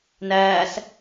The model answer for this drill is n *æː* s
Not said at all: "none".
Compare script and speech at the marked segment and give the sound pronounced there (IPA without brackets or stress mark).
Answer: æː